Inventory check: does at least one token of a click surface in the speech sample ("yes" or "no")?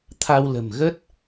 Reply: no